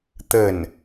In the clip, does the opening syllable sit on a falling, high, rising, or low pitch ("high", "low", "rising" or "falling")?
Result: falling